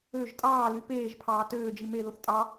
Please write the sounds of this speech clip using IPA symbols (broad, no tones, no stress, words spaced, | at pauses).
øʒ tʼɑːly peːʒpʰɑː tøːd͡ʒi meðoθ tʼɑ